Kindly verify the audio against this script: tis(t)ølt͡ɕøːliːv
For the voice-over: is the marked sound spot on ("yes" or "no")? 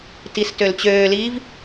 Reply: yes